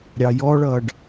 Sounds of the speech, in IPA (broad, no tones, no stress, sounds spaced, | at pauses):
ɾʲ ɑ j ɔ ɭ ʌː ɖ